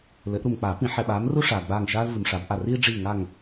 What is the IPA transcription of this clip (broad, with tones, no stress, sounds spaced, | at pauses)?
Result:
l ɘ˨˩˦ ʔ ɾ u˨ m k͡p a˨˩˦ p ĩ˨˩˦ ħ ɛ˨ ɓ aː˨˥ m r u˥ ʂ aː˨ ɡ͡b aː˦˨ ŋ ʃ aː˥ l v ɨ˨ m ʂ a˨˥ b ʔ a˦˨ r iː˥ ɖ͡ʐ iː˦˨ ŋ a˦˨ ŋ